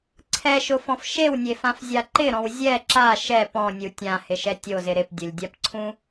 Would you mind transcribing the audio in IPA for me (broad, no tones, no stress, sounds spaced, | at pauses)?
ǀʰ ɛ ʃ ʊ f ɔ̃ f ʃ e w nʲ e f ã f zʲ a ǃ ɪ ɾ ɔ̃ w zʲ ɛ ǁ a ʃ ɛ p ɔ̃ nʲ u tʲ ã h ɪ ʃ ɛ tʲ o z ɪ ɾ ɪ p dʲ ʊ lʲ dʲ a p ǀʰ ũ